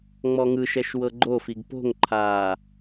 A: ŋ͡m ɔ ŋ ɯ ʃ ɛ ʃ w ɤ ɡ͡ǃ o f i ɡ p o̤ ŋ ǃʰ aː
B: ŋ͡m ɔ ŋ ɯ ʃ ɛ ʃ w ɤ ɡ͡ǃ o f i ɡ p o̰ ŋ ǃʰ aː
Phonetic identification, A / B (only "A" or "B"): A